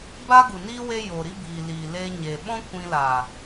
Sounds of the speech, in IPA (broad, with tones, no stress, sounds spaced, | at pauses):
b a˦ ɡ u˨ n i˦ w e˦ j o˨ ɾ i˦ b iː˨ l iː˨ l eː˧ ɲ e˨ ɓ ɔ̃˦ kʷ ĩ˧ l aː˨